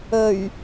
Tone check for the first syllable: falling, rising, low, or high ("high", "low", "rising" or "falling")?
low